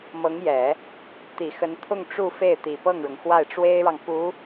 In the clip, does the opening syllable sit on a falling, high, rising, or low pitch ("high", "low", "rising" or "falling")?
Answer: rising